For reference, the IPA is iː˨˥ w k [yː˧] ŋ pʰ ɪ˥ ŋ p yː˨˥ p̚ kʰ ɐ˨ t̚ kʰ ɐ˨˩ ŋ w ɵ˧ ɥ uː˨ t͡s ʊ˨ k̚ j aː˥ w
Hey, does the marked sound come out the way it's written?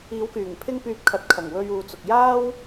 no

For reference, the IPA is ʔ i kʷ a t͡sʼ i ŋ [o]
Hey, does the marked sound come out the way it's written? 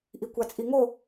yes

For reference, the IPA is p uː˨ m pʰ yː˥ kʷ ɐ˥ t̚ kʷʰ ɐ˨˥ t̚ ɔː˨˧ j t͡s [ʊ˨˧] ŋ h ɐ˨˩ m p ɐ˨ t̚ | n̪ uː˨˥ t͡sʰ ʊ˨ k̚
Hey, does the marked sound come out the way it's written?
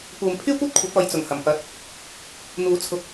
no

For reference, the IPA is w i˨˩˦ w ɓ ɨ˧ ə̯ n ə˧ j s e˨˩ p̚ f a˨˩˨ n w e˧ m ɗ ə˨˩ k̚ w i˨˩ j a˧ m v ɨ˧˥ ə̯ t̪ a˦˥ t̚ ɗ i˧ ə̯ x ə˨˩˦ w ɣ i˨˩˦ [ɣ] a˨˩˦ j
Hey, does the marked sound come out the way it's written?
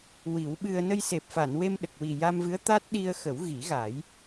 yes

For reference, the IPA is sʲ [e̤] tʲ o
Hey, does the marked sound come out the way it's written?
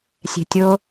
yes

